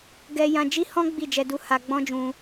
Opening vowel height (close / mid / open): mid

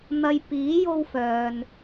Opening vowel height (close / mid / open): open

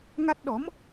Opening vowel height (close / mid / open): open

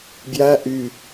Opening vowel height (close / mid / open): open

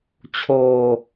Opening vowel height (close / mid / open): mid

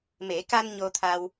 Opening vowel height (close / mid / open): mid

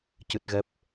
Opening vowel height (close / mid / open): close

